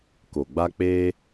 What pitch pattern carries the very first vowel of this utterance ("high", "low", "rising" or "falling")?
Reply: low